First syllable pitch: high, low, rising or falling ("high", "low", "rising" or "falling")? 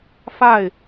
falling